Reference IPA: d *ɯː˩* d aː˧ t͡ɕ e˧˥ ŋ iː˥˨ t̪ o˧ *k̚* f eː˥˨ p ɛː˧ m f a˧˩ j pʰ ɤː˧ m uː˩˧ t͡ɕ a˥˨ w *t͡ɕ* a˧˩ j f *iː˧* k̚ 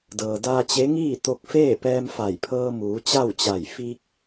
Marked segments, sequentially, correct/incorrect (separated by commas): incorrect, correct, correct, correct